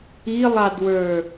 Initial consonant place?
alveolar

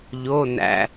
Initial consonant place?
palatal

